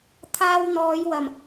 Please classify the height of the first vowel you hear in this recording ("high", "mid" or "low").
low